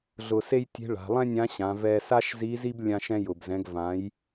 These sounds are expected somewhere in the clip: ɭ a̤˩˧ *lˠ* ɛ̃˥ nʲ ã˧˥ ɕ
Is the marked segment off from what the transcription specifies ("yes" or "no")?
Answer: no